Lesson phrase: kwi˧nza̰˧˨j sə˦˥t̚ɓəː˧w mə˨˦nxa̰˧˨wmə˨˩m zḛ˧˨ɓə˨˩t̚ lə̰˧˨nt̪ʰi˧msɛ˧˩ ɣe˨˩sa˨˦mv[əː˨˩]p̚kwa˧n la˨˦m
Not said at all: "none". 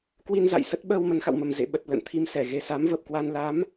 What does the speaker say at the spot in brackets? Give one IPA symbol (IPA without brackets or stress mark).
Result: əː˨˩